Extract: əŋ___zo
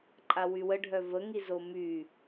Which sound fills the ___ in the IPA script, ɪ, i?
i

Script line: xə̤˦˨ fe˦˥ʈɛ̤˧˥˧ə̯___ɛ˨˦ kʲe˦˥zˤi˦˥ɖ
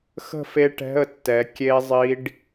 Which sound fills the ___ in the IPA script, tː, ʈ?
tː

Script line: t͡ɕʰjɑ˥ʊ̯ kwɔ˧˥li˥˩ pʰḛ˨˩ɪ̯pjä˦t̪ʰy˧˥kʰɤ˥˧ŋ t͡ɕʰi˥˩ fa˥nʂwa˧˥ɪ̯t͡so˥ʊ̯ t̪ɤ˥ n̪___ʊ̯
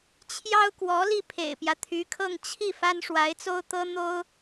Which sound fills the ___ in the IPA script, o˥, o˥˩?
o˥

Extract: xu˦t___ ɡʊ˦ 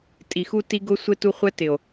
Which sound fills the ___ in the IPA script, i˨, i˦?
i˦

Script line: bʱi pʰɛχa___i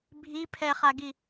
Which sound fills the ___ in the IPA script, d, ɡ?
ɡ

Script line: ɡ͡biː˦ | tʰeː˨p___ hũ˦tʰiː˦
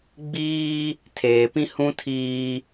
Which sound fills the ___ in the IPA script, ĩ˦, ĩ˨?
ĩ˦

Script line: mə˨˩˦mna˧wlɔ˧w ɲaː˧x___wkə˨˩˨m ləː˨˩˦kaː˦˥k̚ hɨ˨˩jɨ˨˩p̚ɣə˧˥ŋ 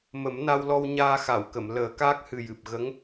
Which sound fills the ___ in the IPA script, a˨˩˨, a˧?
a˨˩˨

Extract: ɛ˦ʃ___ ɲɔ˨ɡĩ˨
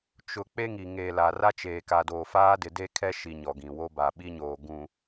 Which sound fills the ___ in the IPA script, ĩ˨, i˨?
i˨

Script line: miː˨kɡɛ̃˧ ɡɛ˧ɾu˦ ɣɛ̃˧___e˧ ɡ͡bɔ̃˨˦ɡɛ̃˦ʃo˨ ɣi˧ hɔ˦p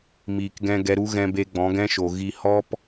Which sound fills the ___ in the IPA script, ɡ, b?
b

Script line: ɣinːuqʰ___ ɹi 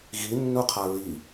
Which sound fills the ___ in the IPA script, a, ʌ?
a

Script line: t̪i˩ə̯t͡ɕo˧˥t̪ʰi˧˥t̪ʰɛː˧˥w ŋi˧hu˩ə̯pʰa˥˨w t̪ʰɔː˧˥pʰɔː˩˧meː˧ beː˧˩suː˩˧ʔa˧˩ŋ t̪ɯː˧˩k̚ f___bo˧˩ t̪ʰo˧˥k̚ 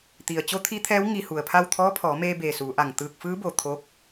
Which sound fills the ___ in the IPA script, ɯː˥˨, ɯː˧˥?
ɯː˧˥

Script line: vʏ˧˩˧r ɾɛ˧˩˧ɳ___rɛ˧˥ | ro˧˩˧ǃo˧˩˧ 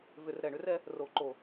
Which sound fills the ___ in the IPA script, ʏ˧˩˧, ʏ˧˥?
ʏ˧˥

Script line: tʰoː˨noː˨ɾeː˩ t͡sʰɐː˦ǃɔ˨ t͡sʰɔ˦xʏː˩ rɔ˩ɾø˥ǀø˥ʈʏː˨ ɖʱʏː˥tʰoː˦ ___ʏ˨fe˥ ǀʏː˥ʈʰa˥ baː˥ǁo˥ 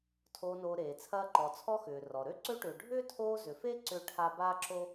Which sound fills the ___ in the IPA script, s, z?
z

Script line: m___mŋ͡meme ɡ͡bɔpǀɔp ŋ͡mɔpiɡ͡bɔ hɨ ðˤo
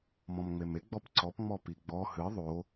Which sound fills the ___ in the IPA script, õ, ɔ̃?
ɔ̃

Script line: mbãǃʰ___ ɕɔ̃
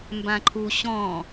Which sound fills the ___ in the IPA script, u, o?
u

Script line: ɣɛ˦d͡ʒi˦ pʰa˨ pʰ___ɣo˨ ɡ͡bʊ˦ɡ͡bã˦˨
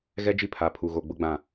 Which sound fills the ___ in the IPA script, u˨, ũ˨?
u˨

